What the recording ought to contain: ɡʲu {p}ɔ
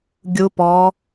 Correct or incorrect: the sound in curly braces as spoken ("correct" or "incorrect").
correct